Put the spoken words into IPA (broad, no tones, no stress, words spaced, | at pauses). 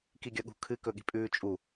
kiɡʲɐɠṳ kʰɨkɵɠi̤ pʼʉːt͡ʃʼu